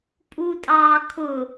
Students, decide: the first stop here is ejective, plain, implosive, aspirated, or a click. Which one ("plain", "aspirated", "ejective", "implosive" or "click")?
ejective